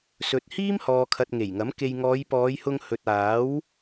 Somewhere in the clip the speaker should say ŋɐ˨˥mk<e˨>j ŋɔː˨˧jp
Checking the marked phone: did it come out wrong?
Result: yes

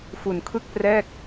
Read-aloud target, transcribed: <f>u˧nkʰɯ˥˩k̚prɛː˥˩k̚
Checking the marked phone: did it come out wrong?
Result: no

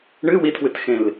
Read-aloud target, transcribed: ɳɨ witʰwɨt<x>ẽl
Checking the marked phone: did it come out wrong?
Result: no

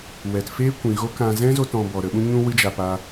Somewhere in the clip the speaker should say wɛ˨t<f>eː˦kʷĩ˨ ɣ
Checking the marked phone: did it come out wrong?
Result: no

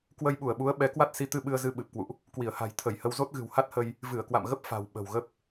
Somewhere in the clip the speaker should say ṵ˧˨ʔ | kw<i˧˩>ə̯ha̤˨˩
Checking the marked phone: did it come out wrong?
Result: no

